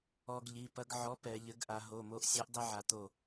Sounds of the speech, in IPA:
ɔ˦ ɡ ʎ i˩˧˩ p ɐ˦ ɡ ʕ ɔ˨˥ p ɛ˩˧ ʎ ɘ˨˥ ɡ ʔ a˩˧ ɦ o˩˧˩ m o˦ ʔ sʲ ɔ˨˥ ʔ dˤ ɐ˦ ʕ a˩˧ t̪ o˧˩

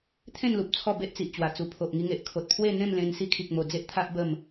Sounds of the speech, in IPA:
t̪ʰ ẽ˥˧ n l u˨ p̚ t͡sʰ ɔ˥˧ b e˦ ʔ t͡s i˨ ʔ t͡ɕ w a˨˩ t͡s u˨˩ pʰ o˨ ʔ ŋ i˧ ŋ e˨ ʔ kʰ o˨ t̚ pʰ w e˥˧ n̪ ẽ˥˧ m l ẽ˧ n s i˧ kʰ i˨ k̚ m o˨˩ d͡z e˦ ʔ t̪ʰ a˦ ʔ b ə˥˧ m

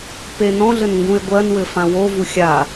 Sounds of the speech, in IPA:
p e n ɔ̃ ɮ ɘ n ŋ ɡ ũ e̯ ɡʷ ɜ n w ɘ f ã w o v u xʲ a

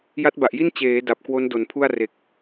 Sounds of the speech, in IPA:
j a˦˥ t̚ b a˨˩ ʔ j i˥˩ n t͡ɕ eː˩˦ d a˨˩ p̚ k w o˦˥ n d o˨˩ n pʰ u˥˩ a̯ r e˨˩ k̚

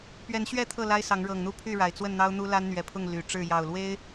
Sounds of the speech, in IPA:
p ɥ ɛ˨˦ n ɕ ɥ ɛ˥˨ t̪ʰ ɤ˥˨ l a˦ ɪ̯ s ɑ˨˦ ŋ ɻ ɤ˨˩ ŋ n̪ u˥˨ pʰ y˥˨ ɻ a˨˩ ɪ̯ t͡s w ə˥˨ n n̪ ɑ˦ ʊ̯ n̪ u˦ l a˦ n n̪ ɥ ɛ˨˦ pʰ ʊ˥˨ ŋ l y˨˩ ʈ͡ʂ ɻ̩˥˨ j ɑ˨˩ ʊ̯ l w e˦ ɪ̯

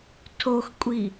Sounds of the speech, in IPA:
tʰ o x kʷʼ i

